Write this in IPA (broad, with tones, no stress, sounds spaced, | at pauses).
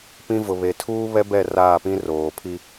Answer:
p ĩ˦ v ʊ˨ β e˨ tʰ uː˦ β ɛ˦ b ɛ˦˨ r aː˦˨ p ĩ˦ r oː˨ pʰ i˦